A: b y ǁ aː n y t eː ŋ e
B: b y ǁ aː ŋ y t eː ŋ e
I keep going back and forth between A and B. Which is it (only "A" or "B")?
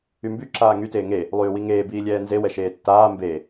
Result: B